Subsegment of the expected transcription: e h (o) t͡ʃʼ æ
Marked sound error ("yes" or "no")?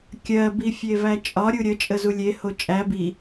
no